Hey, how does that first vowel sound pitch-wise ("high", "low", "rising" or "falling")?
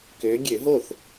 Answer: rising